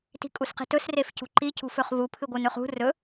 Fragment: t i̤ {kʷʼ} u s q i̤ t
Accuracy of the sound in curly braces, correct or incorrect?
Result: incorrect: kʼ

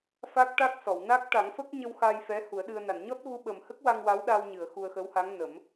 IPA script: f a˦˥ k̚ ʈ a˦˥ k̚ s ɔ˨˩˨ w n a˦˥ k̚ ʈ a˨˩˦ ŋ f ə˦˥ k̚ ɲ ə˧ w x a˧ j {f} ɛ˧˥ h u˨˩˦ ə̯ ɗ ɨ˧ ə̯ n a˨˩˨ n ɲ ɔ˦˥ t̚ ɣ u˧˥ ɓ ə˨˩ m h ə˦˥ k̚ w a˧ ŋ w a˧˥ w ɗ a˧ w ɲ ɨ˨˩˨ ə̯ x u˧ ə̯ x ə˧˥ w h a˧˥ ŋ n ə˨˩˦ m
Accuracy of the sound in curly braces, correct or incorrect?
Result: correct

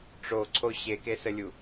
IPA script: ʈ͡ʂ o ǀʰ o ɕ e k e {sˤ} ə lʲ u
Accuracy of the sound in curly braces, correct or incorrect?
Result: incorrect: s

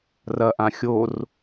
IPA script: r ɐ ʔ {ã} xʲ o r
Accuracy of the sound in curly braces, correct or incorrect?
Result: correct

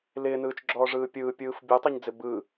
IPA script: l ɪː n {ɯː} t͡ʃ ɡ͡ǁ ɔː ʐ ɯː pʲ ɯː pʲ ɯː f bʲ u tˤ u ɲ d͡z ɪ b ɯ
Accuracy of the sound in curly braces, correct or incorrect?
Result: correct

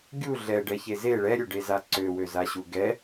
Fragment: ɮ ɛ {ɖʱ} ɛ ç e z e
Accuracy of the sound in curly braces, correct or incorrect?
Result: incorrect: ɖ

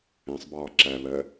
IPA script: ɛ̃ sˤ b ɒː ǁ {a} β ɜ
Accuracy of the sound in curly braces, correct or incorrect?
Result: incorrect: æ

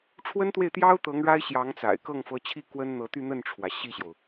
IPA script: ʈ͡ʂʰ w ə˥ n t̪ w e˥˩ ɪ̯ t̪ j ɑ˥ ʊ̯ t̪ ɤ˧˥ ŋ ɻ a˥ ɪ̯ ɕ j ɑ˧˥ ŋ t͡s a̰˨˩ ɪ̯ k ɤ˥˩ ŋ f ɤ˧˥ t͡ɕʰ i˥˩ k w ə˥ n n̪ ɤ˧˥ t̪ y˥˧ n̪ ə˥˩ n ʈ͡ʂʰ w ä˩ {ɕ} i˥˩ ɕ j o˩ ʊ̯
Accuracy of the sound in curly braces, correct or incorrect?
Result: correct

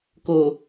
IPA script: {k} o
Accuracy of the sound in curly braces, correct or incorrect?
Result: correct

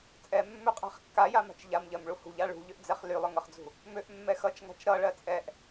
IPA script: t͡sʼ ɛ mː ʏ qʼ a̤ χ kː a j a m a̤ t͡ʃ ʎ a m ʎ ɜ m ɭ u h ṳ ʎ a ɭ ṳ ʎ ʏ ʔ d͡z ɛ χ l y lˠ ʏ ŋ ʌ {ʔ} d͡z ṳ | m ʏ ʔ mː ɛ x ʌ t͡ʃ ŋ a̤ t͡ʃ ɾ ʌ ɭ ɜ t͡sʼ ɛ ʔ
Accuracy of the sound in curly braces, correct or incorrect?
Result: incorrect: χ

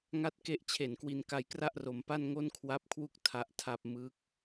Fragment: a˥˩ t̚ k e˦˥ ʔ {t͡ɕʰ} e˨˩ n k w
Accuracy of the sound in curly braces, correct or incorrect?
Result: correct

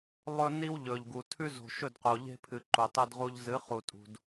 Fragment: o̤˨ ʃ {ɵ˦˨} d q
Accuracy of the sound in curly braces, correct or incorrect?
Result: correct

